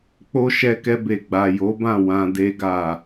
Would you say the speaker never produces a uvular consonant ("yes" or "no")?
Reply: yes